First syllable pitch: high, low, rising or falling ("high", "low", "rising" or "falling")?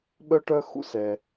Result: high